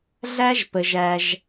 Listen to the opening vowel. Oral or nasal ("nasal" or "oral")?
oral